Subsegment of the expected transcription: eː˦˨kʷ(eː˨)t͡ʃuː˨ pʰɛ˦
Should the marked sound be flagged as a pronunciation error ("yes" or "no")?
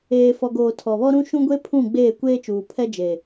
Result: yes